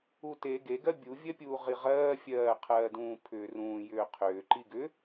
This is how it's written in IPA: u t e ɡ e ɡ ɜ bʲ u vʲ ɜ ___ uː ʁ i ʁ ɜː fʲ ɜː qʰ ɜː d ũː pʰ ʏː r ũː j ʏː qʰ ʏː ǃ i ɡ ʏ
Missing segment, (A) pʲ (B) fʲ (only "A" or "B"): A